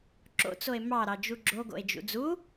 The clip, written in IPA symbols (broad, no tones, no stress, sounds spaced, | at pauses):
ǁ o̰ t͡s o e̯ m ɑ ɾ ɑ d͡ʒ u ɡ͡ǁ o ɡ o̰ e̯ d͡ʒ ṵ d͡z u